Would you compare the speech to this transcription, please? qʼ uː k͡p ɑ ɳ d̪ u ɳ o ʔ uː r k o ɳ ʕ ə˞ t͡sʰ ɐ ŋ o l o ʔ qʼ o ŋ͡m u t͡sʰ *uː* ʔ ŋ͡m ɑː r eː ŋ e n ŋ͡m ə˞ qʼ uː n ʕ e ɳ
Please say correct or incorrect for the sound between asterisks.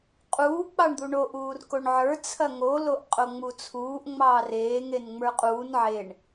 correct